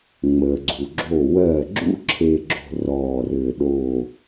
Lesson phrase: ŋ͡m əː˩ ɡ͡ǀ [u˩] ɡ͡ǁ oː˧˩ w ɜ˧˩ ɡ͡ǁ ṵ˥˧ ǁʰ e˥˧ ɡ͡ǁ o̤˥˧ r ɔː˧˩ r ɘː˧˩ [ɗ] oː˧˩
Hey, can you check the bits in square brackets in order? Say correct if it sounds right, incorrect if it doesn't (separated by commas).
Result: correct, correct